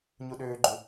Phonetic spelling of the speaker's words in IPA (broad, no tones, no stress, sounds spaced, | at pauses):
ɲ u ɗ øː ɡ͡ǃ u